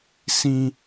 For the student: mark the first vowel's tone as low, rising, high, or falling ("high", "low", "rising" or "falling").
high